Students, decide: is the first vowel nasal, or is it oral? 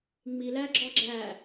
oral